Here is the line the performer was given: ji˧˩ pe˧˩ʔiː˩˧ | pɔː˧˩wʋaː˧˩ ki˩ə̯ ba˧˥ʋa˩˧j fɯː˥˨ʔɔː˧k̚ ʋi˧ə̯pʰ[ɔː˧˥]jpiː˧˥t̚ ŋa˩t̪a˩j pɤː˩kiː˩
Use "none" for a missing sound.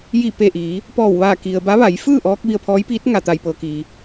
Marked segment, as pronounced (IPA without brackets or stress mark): ɔː˧˥